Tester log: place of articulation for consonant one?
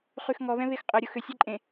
uvular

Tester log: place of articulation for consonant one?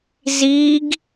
alveolar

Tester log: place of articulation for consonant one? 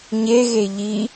palatal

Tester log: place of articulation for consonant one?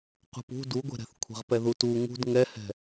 uvular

